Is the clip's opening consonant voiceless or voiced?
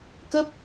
voiceless